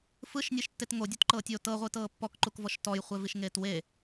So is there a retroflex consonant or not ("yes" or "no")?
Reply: no